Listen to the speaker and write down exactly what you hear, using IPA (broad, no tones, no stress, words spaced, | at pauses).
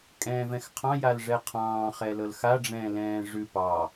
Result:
kʼɛ̃ːvɛ̃xqʰɑ̃ jalʐɛqʰɑ̃ː χɛlɤlxa ɖ͡ʐɛ̃ːlɛ̃ːʐʉ pɑ